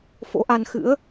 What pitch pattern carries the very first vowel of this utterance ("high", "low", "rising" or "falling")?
rising